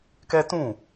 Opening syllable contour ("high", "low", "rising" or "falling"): high